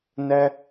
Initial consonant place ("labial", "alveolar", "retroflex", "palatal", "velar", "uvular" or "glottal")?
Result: alveolar